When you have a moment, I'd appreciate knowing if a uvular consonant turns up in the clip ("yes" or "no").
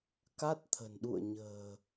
no